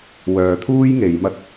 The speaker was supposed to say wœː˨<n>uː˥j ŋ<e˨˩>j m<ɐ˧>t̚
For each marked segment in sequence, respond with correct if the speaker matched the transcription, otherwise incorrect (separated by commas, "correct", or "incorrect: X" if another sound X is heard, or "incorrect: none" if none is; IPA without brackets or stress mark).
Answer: incorrect: t̪ʰ, incorrect: e˨˧, incorrect: ɐ˥